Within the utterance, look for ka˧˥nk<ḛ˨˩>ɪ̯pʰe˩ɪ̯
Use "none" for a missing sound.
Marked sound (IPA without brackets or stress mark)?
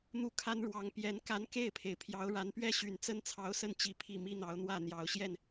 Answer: e˥˩